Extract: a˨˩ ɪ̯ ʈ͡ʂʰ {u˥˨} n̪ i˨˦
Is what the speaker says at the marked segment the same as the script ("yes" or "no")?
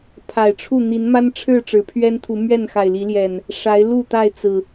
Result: yes